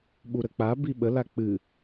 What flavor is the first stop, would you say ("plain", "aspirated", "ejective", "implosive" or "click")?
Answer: implosive